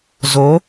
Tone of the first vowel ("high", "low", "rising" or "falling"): rising